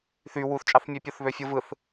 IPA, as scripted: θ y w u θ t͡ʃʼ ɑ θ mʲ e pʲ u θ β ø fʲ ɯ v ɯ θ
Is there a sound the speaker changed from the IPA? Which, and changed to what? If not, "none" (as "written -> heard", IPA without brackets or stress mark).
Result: none